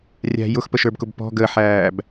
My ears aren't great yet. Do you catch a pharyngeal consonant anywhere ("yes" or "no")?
yes